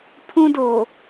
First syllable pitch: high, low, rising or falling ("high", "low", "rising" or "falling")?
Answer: high